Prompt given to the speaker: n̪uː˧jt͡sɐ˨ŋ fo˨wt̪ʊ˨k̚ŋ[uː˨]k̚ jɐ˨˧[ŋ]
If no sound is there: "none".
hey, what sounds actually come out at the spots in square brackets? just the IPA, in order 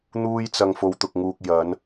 uː˨, n

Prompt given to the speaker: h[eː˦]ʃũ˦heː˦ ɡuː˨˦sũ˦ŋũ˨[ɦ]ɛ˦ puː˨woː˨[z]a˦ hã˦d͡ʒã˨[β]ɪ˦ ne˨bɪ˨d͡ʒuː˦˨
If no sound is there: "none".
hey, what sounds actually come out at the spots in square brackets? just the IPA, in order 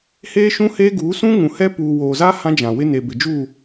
eː˦, h, z, w

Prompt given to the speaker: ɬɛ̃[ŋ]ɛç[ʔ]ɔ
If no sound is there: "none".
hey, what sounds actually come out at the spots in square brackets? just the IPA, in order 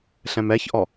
m, ʔ

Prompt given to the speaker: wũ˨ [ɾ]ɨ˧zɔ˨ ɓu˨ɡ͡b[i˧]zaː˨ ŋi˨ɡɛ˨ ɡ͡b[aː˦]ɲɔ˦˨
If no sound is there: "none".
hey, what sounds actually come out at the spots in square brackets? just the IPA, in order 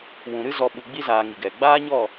ɾ, i˧, aː˦

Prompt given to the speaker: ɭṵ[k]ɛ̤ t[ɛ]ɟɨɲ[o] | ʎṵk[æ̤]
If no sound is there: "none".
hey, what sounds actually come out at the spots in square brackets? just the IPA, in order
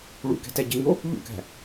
k, ɛ, o, æ̤

